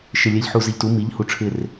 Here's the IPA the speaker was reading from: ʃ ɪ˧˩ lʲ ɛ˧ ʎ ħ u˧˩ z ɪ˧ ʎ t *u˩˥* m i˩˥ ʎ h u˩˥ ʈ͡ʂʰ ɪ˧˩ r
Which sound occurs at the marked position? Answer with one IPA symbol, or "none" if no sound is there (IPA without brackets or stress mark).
u˩˥